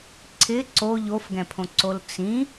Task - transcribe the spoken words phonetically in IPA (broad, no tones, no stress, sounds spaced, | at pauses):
ǀʰ ɪ ǀ o ʎ o f ɡ ɛ̃ pʰ õ ǀ o l t͡s ĩ